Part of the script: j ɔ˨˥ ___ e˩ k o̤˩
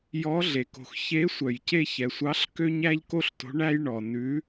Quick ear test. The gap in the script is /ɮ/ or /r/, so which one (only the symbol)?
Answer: ɮ